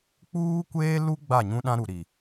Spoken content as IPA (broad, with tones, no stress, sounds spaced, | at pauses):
k͡p uː˦ kʷ eː˦ l u˦ ɡ͡b a˦˨ ɲ ũ˦ ɗ ã˦ ɾ u˨ ɾ i˨